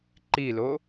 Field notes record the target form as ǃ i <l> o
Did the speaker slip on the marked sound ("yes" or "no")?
no